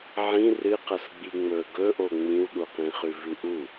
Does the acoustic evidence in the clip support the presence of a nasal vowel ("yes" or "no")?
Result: yes